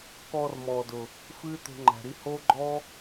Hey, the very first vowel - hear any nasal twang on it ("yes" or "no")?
no